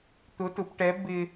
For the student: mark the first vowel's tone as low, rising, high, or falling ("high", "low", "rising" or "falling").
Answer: rising